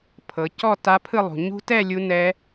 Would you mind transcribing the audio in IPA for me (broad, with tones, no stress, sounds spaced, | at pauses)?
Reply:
pʰ ɤ˨ c ɔ˥˧ t a˦˥ pʰ ɯ˥˧ lˠ ṳ˨ ɲ ṳ˦˥ t ɛ˥˧ lʲ u˦˥ n ɛ˦˥